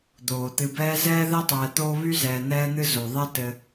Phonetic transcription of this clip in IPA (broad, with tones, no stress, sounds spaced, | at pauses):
d̪ oː˩ t̪ ɨ˨ b ɛː˦ z ɛː˥ ð ɛ˥ tˤ ɛː˨ t̪ oː˦ β y˥ z ɛː˨ n̪ ɛː˦ n̪ ɨ˦ z o˩ ðˤ ɛ˦ t ɘ˨